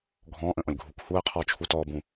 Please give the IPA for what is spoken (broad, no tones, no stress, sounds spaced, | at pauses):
ɡʱ ɔ̃ː ʔ ə̃ ʔ ɔ̃ lʲ ɡʱ u k h uː ə̯ qʰ ɔː t͡ʃʰ u t ɔː b ũ